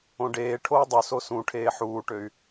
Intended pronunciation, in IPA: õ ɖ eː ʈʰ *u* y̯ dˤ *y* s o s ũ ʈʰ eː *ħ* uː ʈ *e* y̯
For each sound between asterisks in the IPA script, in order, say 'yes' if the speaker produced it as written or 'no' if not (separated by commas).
no, no, yes, no